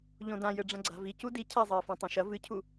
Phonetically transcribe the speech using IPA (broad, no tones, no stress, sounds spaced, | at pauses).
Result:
ʎ õ d ã j ɘ ɖ͡ʐ ɐ̃ ɡ͡ǀ a̤ v i c u d i cʰ a zˤ ɘː f ã tˤ õ ʃ ɐ v ɨ cʰ u